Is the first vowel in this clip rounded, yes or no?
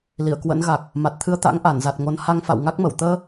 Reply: no